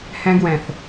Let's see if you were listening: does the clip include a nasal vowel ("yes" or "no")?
yes